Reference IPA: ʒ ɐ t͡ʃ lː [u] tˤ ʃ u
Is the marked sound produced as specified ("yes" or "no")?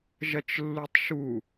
yes